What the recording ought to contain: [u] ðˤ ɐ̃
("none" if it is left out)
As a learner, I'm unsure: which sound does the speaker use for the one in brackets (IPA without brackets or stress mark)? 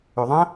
ø